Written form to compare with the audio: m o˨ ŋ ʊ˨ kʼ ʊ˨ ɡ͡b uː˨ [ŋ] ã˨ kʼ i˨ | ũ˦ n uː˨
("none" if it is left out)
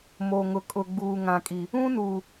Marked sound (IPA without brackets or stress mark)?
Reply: ŋ